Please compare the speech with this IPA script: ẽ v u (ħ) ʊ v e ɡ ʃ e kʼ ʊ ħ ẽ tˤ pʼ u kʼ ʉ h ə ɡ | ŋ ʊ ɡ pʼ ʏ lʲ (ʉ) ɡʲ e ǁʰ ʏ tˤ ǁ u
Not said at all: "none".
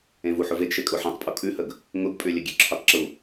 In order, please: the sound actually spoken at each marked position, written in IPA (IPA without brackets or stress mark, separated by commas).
ħ, ə